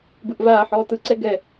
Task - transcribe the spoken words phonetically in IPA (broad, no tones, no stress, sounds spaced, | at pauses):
b ɯ ʔ v aː ħ ɔː t ɯ ǀ ɛ ɡ ɛ